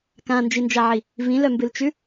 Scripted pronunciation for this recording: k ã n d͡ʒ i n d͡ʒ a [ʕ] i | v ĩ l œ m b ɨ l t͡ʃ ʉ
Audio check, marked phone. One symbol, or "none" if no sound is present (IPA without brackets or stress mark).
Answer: ʕ